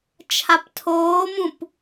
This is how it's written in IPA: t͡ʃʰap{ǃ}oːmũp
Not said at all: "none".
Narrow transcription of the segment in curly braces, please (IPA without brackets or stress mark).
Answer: tʰ